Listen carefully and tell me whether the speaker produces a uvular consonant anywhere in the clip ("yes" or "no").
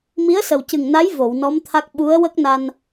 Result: no